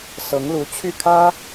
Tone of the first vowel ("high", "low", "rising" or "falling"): rising